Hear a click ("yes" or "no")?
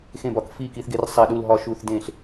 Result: no